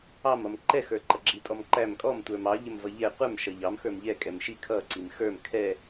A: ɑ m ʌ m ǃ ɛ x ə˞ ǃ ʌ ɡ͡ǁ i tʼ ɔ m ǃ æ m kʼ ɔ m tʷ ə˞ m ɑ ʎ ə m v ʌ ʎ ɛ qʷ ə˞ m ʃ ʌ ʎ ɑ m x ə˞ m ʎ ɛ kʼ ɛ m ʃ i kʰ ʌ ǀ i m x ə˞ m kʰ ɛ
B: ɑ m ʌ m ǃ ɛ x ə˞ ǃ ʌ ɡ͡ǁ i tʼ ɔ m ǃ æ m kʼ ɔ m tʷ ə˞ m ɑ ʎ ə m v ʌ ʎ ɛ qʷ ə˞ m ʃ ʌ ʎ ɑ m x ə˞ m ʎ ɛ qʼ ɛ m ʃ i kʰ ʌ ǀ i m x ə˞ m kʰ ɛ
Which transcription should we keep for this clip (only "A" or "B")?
A